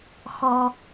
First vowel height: mid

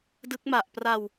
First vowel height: high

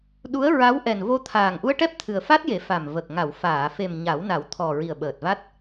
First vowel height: high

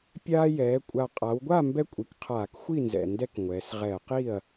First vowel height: low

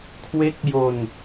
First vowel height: mid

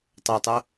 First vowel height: mid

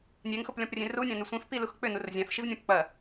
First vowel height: mid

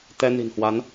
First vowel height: mid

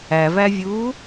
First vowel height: low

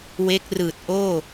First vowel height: mid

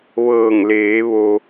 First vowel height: mid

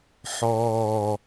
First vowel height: mid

